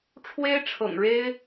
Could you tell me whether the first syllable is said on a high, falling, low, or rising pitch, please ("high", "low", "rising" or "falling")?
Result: high